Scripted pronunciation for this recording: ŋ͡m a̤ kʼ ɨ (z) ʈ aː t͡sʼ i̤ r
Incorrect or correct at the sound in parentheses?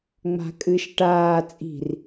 incorrect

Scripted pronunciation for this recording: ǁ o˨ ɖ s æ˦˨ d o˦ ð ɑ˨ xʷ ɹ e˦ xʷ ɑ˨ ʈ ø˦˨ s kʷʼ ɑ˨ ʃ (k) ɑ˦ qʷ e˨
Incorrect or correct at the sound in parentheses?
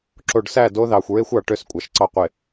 incorrect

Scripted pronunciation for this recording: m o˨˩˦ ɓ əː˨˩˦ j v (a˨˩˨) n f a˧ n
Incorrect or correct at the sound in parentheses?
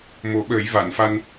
correct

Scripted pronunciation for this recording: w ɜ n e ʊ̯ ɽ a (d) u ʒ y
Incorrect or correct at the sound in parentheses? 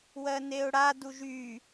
correct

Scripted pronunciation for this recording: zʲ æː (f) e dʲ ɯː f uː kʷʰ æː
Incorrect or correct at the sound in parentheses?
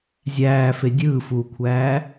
correct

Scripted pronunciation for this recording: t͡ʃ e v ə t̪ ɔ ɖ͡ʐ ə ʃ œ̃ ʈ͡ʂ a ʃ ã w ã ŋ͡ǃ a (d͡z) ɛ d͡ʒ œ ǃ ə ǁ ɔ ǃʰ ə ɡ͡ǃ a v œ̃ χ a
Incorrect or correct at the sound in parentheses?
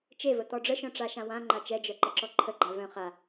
incorrect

